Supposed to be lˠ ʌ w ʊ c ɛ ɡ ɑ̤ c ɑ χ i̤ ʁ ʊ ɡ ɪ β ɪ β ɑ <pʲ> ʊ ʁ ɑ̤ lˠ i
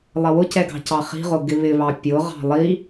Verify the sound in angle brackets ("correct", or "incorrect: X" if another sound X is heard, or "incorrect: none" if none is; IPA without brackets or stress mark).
correct